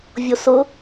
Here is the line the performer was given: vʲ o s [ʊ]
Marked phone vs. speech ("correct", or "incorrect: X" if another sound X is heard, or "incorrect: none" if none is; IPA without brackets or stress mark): correct